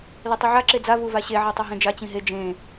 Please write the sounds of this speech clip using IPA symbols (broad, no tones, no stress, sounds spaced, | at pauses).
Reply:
l e tˤ i ʕ a ǁ e d͡z a v u v a ɕ e ʕ e tˤ o ɦ ẽ d͡ʒ a t͡ɕ ĩ ɦ e d͡ʒ ẽ